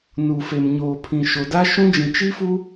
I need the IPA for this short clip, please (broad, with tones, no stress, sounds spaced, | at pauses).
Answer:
n uː˨ f e˨ m ɲ oː˨ pʰ ĩ˨ ʃ o˨ d a˦ ʃ ũ˦ d͡ʒ ĩ˨ t͡ʃ i˦ f u˦